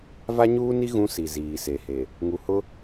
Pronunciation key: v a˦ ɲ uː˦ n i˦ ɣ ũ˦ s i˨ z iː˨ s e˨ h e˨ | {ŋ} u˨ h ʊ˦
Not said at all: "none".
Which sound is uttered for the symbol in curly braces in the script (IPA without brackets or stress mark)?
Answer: ŋ